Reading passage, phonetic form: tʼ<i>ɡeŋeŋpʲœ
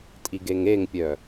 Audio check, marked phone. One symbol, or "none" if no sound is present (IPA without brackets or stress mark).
i